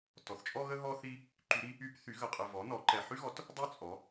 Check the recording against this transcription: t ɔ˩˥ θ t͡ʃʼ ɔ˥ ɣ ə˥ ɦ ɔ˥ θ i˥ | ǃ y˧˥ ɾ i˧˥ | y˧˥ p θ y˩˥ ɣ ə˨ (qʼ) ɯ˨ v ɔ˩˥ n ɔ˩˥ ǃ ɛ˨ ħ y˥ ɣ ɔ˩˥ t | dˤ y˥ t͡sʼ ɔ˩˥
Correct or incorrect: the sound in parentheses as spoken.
correct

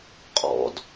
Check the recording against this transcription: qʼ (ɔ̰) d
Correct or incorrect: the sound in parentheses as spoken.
correct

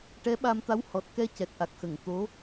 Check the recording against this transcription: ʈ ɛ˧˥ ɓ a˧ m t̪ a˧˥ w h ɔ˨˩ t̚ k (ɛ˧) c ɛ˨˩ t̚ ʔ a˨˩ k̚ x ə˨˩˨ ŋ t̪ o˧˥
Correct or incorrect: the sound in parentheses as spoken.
correct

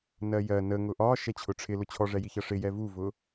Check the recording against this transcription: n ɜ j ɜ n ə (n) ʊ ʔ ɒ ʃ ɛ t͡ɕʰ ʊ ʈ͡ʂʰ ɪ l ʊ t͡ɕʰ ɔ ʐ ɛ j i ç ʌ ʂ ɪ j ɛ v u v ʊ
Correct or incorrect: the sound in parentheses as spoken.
incorrect: ŋ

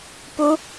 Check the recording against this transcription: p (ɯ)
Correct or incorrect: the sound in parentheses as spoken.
incorrect: u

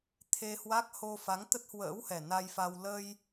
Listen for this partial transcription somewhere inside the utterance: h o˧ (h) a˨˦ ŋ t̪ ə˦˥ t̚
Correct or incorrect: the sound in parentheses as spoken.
incorrect: f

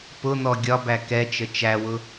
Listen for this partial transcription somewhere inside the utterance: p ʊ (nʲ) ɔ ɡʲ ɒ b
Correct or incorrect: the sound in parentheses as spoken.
incorrect: n̪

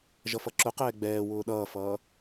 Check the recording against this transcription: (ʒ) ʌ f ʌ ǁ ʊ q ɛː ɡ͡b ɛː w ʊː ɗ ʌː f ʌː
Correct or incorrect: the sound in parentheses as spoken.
correct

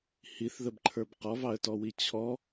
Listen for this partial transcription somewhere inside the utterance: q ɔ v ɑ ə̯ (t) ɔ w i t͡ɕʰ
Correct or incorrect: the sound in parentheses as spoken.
correct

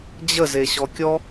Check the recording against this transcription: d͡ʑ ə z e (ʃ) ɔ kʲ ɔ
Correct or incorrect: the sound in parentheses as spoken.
incorrect: ɕ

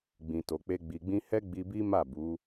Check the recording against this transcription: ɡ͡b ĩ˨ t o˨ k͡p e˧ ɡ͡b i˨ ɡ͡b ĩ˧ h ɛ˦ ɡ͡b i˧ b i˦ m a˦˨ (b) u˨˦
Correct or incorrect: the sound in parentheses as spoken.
correct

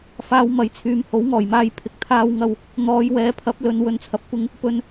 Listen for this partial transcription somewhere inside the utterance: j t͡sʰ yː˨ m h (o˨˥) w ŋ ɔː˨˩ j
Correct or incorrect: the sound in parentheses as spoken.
correct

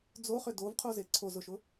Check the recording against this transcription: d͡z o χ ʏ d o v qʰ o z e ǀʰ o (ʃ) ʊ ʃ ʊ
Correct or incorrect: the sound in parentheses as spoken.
incorrect: z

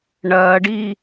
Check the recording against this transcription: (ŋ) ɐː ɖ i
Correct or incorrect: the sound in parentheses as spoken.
incorrect: ɳ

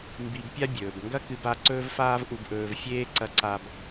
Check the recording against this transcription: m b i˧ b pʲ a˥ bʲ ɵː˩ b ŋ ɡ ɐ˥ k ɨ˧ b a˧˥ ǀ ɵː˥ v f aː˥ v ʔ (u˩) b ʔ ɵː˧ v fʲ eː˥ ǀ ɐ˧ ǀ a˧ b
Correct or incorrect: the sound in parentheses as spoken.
incorrect: u˧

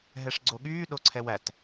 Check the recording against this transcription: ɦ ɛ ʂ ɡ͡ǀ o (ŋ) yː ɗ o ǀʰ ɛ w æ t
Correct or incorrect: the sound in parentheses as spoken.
incorrect: ɠ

